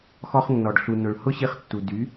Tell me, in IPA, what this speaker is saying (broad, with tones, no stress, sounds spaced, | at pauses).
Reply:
x ɔ˧ χ nː ɔ˨ ɖ ɬ u˨ n ʊ˨ ɭ h ʊ˦ ɕ i˧ χ tː u˨ d y˨˦